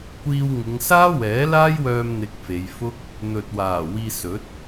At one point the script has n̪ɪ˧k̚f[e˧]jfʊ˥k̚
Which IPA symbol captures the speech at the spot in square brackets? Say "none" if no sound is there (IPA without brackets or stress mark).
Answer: e˨˧